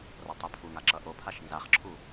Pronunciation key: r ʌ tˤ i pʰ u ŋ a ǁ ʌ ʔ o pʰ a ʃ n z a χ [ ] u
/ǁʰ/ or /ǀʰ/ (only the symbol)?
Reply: ǁʰ